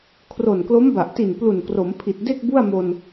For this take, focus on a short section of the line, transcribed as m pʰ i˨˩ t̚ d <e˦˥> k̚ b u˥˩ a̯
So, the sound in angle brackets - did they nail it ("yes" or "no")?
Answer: no